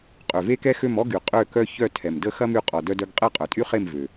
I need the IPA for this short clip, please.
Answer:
qʼ ø˩ v e˦ k ɛ˦ x ø˦˨ m ɔ˦ ɡ y˩ qʼ ø˦˨ k œ˦ ç œ˦˨ tʰ ɛ˩ m d ə˦ x ɐ˦ m y˦˨ qʼ ɔ˩ d œ˦ d œ˦ ɡ qʼ ɛ˦˨ qʼ œ˩ tʼ y˦ χ e˦˨ m v ø˩

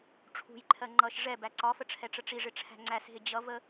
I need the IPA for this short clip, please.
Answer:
ʈ͡ʂʰ ṳ j ǃʰ ɜ ŋ͡ǃ ʌ ʃ ʐ ɛ b æ ǀ ɒ f ə ʈ͡ʂʰ ɛ ʈ͡ʂ ə ʈ͡ʂ i ʐ ɪ ʈ͡ʂʰ æ̤ ŋ͡ǀ æ s ɦ ɪ d͡ʑ ʌ v ə

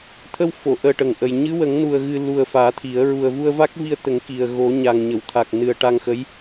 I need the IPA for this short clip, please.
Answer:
t̪ʰ ə˧ w f o˨˩˨ ʔ əː˨˩ ʈ ə˨˩ ŋ ʔ ə˨˩ j ɲ ɨ˧˥ w ə˨˩˦ ŋ n u˨˩ ə̯ ɣ ɨ˧ l u˨˩ ə̯ f aː˨˩˦ t̪ʰ i˨˩˦ ə̯ ɹ u˨˩ ə̯ v u˧ ə̯ v a˦˥ k̚ v i˧ ə̯ t̪ ə˨˩˦ ŋ k i˨˩ ə̯ ɣ o˨˩˦ ɲ a˨˩ ŋ ɲ ə˨˩˨ w t̪ʰ a˨˩ k̚ n ɨ˨˩ ə̯ ʈ a˧ ŋ x ə˧˥ j

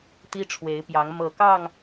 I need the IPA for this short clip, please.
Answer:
t̪ i˦ ʈ͡ʂʰ w e˨˦ ɪ̯ p j ɑ˨˦ ŋ m ɤ˨˩ k ɑ˥˨ ŋ

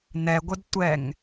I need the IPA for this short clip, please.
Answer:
n̪ ɛ ɡʷ ɪ d tʷ ɛ ŋ

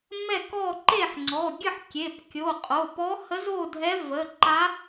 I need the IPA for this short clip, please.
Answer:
m ɛ˥˨ k ɔ˥˨ ǃ e˥˨ ħ ŋ͡ǀ ɔ˩˧˩ ɡʲ ə˥˨ ħ kʲ e˩˧˩ p kʲ o˩˧˩ qʼ o˩˧˩ p ɔ˧˥ h ə˧˥ z o˥˨ dʱ ɛ˧˥ v ə˩˧˩ ǃ a˧˥

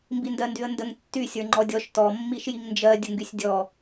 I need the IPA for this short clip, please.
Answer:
m b i n d ɜ n d y ə̯ n d ə ŋ tː y sʲ ə˞ ŋ͡ǃ ɔ dʲ ɔ ʃ t ɔ mː i ʃ j i ŋ n d͡ʒ ɜ dʲ ə ŋ ɡ y sʲ dʲ ɔ

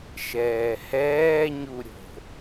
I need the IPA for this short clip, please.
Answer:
ʃ ɛː h ɛː ɲ u ɾʲ o̤

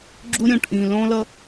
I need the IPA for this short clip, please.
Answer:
ɡ͡ǁ u˦ ɾʲ õ˨ ʈ ʔ ĩ˨ l õ˦ l ʌ˦

